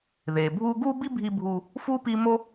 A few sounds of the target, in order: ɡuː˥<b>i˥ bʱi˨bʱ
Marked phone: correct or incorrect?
correct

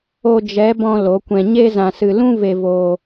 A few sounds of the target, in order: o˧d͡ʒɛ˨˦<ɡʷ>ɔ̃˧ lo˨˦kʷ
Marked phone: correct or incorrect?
incorrect: b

